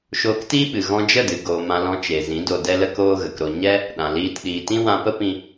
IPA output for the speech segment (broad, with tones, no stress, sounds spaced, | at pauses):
ʃ oː˧ k t iː˦ ɓ ɨ˨ ɣ ɔ̃˧ d͡ʒ ə˦˨ d ɨ˨ ɡ oː˧ m ã˦ l ɔ̃˦ t͡ʃ e˨ z ĩ˨˦ d o˧ d ɛ˦ l ə˦ k oː˦ ɣ ə˨ k ɾ o˧ ɲ ɛ˦ | ɗ ã˨ l iː˧ t ɗ iː˨ t ĩ˦ w ã˧ p ə˦ p ĩ˧